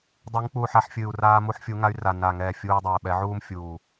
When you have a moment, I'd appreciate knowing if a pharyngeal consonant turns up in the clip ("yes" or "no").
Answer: yes